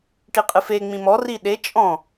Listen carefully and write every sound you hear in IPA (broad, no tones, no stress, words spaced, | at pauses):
ʈiqʼɨfe ŋ͡mĩmɔ riɗe t͡ʃʼɔ̃